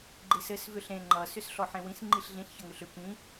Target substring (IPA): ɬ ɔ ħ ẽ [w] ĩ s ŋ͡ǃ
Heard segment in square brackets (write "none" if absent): w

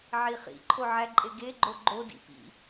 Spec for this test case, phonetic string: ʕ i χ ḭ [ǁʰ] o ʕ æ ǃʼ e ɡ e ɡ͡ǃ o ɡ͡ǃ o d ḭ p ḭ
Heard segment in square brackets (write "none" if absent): ǃʰ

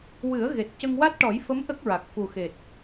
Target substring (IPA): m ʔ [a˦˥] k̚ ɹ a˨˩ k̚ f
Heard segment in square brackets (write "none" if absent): ə˦˥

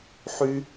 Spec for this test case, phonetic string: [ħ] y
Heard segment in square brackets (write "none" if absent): ħ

